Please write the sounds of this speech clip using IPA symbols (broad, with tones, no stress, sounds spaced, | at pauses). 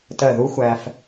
t ɜ˧˩ ð u˧˥ xʷ æ˧ f